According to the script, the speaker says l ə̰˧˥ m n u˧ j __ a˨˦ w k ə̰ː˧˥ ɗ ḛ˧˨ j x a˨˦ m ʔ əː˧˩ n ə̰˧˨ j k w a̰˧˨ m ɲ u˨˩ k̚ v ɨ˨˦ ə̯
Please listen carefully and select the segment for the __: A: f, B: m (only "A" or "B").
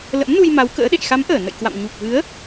B